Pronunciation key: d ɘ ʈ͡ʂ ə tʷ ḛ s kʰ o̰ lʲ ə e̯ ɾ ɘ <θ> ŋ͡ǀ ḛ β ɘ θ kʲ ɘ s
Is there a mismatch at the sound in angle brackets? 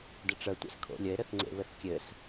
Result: no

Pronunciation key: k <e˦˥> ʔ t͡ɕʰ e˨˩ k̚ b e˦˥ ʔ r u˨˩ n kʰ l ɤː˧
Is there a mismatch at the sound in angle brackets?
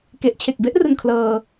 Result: yes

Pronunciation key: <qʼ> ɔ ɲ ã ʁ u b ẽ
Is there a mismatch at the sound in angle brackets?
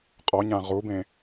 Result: no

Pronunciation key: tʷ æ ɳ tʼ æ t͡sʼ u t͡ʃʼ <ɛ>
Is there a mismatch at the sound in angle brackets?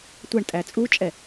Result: no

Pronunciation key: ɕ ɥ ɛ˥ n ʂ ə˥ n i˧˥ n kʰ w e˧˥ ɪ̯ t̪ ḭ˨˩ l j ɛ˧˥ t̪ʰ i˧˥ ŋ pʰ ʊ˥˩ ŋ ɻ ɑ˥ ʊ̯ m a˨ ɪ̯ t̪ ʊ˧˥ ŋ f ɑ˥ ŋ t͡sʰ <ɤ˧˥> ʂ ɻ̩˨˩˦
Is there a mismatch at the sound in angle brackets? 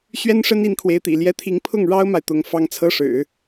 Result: yes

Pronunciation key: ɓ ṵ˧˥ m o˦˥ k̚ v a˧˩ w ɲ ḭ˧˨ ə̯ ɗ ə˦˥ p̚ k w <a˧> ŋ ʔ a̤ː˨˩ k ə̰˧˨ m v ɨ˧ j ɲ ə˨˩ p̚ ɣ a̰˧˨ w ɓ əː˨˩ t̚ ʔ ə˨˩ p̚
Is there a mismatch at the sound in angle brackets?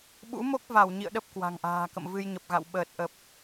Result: yes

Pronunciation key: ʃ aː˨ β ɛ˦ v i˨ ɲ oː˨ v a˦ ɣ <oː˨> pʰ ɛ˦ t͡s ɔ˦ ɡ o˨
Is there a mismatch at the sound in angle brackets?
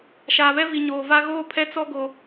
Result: yes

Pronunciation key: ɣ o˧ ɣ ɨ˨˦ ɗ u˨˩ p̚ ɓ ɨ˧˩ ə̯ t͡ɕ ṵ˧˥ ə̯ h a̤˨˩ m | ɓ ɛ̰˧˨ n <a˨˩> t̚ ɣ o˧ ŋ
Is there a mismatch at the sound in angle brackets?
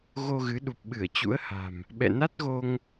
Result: yes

